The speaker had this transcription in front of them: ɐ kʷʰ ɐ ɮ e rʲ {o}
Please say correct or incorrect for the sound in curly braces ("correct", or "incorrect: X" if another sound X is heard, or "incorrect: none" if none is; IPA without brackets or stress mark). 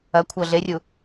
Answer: incorrect: u